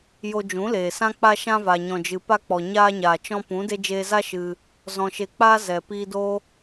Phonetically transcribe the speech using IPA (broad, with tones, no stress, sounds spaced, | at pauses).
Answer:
j o˧ d͡ʒ ũ˨˦ l eː˨ s ã˦ k͡p a˧ ʃ ã˧ v a˨ ɲ ɔ̃˨ d͡ʒ ɨ˨ p a˧ k͡p ɔ˨ ɲ aː˧ ɲ aː˨ t͡ʃ ɔ̃˧ p ũ˨˦ d e˦ d͡ʒ eː˧ z a˦ ʃ ɨ˧ | z ɔ̃˧ ʃ e˧ k͡p aː˦ z ɛ˨ p iː˧ d o˦